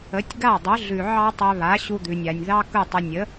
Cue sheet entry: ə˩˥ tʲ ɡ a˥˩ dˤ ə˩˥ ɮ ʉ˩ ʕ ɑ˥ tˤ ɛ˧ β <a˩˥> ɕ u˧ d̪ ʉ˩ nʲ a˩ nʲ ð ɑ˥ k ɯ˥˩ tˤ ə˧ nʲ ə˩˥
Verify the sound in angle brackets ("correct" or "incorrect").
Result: correct